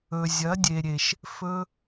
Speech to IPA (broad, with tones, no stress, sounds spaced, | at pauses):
ɵ˨ zʲ ɐ˨˦ dʲ e˨ ɾʲ e˨ ʃ | f ɵ˧